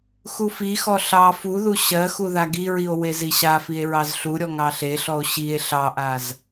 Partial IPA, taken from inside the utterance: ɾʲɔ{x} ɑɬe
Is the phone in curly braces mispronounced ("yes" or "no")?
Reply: yes